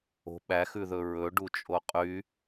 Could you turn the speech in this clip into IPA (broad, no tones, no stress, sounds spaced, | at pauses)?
o̤ ɓ æ x ʉ ð ɵ ɹ ɵ ɖ u t͡ʃʼ o qʼ y